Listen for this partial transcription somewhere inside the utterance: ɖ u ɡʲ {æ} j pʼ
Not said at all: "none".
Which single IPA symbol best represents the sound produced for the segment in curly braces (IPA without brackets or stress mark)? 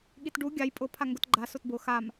a